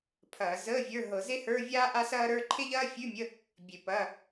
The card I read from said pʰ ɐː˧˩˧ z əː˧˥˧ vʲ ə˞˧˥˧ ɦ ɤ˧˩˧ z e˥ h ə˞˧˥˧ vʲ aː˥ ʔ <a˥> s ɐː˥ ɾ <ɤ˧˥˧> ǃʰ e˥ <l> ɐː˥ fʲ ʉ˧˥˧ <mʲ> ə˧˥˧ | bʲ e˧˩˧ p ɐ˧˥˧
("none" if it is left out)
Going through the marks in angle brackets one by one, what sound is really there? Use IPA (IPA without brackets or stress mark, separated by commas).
a˥, ə˞˧˥˧, ʎ, mʲ